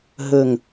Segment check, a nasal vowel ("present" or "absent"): absent